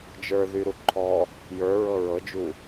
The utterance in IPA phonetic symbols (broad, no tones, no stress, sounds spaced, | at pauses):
d͡ʒ ə˞ ð y ɾ u ǃʰ ɔ | j ə˞ ɹ ɤ ɹ ɤ d͡ʒ u